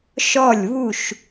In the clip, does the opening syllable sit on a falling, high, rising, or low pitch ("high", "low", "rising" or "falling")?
falling